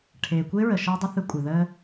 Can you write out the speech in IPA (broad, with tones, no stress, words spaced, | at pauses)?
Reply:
ʈʰeː˨kʷe˦ɹə˨ ʃəː˦dˤə˦θɯ˧ kʷʼə˨ ðəː˧